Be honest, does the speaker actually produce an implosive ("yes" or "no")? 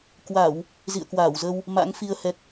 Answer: no